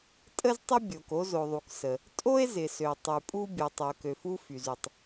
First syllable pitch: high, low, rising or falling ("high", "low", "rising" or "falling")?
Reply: high